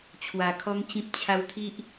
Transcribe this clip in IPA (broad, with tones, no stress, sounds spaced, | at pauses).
t͡ɕʰ w a˧ kʰ ɔ˦ ŋ t͡ɕ ĩ˦ p̚ t͡ɕʰ a˧ w t̪ʰ i˦ ʔ